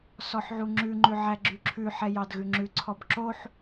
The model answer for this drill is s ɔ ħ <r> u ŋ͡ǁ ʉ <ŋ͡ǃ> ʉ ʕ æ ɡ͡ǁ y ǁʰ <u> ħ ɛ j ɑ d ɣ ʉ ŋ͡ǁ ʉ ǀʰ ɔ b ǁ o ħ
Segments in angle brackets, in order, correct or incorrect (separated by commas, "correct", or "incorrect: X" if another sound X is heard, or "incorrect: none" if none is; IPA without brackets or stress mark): incorrect: ʕ, correct, incorrect: ʉ